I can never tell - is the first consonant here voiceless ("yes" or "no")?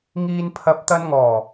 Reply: no